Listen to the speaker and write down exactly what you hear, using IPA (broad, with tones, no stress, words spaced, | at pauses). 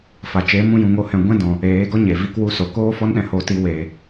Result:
fa˨t͡ʃe˨˦mũ˧ jũ˧ŋo˦hɛ̃˧ ɡʷɛ̃˦dɔ̃˨ | eː˨˦ɡɔ˦ ɲe˨vi˧kwu˧so˨ koː˦fɔ˦nɗɛ̃˧ ho˧ti˧ weː˨